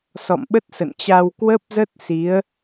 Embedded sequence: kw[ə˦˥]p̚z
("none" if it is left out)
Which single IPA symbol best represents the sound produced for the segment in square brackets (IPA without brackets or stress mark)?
ə˦˥